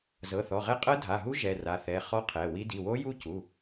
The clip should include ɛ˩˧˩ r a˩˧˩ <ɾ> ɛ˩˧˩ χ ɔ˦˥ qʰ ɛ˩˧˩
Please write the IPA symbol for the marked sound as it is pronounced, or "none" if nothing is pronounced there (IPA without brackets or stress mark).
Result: θ